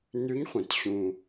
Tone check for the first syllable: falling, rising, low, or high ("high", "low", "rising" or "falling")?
rising